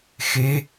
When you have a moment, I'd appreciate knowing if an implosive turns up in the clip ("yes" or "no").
no